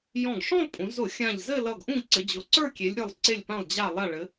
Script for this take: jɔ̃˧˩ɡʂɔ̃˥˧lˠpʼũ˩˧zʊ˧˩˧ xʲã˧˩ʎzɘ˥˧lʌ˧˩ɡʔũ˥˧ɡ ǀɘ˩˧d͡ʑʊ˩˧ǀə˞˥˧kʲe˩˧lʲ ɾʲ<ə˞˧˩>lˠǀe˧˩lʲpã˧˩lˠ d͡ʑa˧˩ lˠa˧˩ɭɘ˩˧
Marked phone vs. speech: correct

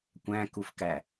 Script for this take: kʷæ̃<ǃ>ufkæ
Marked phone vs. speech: incorrect: k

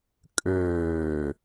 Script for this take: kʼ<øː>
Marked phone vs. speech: correct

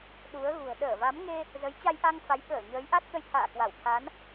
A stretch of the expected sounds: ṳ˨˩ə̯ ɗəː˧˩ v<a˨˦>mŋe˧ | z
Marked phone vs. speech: correct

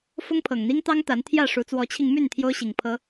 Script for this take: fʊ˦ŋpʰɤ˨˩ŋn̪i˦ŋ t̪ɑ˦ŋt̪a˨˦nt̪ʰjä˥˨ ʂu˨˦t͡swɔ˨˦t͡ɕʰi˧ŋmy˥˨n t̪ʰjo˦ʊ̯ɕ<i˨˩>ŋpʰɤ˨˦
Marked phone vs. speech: correct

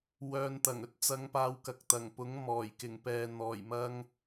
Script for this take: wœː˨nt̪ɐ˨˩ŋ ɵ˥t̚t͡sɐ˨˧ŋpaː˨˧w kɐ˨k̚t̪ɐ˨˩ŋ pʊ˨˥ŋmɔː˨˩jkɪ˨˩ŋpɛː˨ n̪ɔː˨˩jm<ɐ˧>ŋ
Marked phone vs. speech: correct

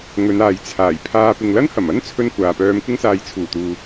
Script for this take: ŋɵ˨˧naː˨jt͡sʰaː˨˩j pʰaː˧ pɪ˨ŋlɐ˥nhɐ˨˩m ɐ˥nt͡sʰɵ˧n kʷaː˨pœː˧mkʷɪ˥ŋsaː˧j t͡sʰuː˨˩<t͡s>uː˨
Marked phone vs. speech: incorrect: t̪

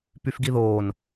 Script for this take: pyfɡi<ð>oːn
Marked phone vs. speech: correct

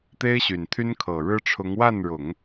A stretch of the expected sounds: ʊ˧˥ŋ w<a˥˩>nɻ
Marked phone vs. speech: correct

